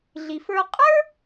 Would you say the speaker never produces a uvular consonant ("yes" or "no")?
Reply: no